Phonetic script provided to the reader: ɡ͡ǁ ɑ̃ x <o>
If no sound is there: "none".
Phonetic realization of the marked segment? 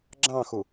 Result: u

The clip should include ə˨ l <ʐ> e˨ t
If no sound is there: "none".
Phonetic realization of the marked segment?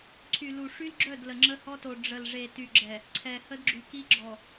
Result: ʐ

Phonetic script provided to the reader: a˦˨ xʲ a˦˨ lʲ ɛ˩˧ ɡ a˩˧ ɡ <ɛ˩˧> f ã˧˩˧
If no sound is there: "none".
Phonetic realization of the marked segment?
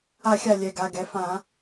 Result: ɛ˩˧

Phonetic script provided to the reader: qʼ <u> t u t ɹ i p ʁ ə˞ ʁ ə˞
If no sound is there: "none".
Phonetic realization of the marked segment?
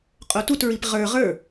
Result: o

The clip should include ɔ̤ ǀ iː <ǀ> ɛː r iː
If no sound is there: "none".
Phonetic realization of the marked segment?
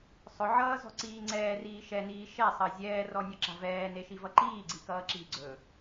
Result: ŋ͡ǀ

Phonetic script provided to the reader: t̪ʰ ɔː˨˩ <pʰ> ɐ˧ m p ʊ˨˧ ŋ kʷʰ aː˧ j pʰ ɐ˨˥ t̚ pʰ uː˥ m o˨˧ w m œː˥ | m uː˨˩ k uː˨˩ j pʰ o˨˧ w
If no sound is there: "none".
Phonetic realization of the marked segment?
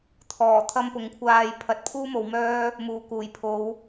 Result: t̪ʰ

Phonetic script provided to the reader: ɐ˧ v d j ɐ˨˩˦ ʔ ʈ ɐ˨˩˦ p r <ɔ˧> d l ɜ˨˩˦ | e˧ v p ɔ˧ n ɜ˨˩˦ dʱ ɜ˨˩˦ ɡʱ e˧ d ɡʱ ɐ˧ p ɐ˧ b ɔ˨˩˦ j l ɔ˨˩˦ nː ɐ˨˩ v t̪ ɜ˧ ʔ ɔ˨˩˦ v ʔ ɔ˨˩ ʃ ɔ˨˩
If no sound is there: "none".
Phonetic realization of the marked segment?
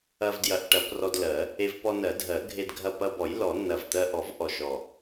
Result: ɔ˧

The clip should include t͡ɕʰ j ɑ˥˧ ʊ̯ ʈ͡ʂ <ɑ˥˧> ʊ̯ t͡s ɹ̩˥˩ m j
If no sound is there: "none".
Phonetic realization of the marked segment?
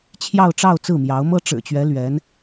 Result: ɑ˥˧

